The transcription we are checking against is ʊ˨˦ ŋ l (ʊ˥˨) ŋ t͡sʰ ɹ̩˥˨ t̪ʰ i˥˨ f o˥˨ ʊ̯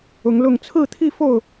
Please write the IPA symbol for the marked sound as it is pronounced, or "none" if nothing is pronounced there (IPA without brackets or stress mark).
ʊ˥˨